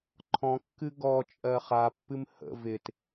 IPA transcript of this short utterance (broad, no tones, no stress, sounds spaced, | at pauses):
ǃʰ ɔ̃ kː ɨ ɡ ɔ t͡ʃʼ ɜ χ a pː ɨ m h ə̰ v ɪ t